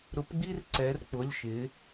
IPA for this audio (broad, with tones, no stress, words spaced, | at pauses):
ɾʊ˧˥pɡ͡bi˥r ǀɛ˧˥rk͡pʊ˧˥˧lʲ ʃɪ˧˥